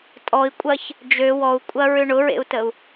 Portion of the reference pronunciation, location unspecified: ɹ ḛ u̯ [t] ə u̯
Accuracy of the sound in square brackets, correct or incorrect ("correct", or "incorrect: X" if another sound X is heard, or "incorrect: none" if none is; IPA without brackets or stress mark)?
correct